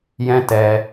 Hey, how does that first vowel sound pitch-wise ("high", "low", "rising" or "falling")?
high